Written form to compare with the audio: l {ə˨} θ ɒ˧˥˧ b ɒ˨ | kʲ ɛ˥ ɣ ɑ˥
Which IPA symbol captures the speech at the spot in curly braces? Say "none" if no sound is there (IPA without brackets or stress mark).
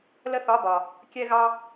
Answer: ə˥